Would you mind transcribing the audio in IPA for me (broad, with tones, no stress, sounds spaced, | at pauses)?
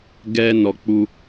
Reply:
ɡ ɛ˦ n ɔ˧ k͡p u˦